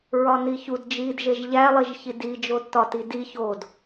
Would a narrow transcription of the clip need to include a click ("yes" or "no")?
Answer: no